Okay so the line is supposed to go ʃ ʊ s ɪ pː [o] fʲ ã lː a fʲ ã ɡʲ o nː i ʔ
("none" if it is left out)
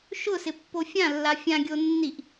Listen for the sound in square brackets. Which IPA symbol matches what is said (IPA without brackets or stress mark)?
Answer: o